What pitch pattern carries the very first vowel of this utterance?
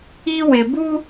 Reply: high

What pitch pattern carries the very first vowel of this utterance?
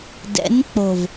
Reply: rising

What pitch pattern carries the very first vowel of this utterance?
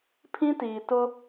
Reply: high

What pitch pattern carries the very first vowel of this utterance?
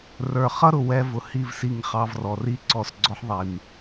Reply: low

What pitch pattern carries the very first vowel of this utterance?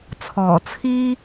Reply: low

